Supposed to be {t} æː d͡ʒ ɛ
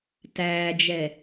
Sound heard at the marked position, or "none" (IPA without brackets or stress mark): t